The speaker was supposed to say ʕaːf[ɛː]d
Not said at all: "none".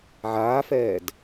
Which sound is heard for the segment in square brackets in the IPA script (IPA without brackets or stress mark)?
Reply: ɛː